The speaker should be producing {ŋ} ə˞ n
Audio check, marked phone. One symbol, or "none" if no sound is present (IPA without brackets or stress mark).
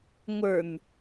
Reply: ŋʷ